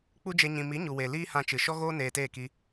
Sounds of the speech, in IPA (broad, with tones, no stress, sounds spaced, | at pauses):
k͡p u˦ d͡ʒ e˧ ɲ ĩ˧ m i˨˦ ɲ u˨ w e˨ l iː˦ h ã˧ t͡ʃ ɨ˨ ʃ ɔ˦ ɣ oː˦ n eː˧ t eː˦˨ k i˧